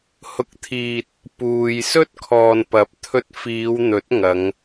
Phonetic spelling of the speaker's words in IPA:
hʊ˨k̚t̪ʰiː˨t̚ | puː˨j sɵ˥t̚kʰɔː˨npɐ˨˥p̚ t̪ʰɵ˧t̚fiː˨˧w n̪ɵ˨˥t̚ŋɐ˨˧ŋ

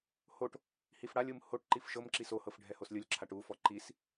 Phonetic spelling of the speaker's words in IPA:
hoʈ | hifɽalʲɯm hoʈǃif ʃɤmǁi sohɤf ɖʱɛhoslʲɯlʲǁʰaʈ ufɔ ǃis

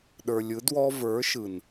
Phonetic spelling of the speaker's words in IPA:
ɗə˞˨lʲɯ˨˦ dwɔ˦ və˞˨˦ʃɯ˨n

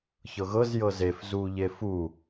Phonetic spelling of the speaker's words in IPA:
çɤɣɤz jɤzef zuʎe fu

